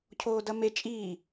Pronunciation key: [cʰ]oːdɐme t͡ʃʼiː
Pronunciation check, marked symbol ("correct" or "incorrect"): correct